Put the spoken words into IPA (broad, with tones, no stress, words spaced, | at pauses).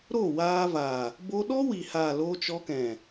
ɾo˦˨waː˧va˨ | bo˧ɗɔ˦wi˨haː˨ loː˧t͡ʃɔ˧kɛ̃˨